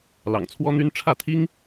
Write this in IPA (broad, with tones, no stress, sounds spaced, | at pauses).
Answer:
l ɑ̰˨˩ ŋ t͡sʰ w ɔ˥ n̪ y˥ n ʈ͡ʂʰ ä˥˩ t̪ʰ i˥ ŋ